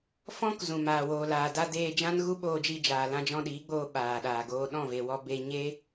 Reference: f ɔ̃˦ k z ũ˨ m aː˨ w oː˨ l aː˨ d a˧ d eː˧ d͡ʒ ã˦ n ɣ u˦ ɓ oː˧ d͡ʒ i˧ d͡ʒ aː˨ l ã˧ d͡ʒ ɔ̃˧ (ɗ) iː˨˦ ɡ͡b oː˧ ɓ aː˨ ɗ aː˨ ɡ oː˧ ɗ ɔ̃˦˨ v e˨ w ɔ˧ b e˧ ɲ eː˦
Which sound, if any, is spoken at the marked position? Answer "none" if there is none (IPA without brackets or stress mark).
ɗ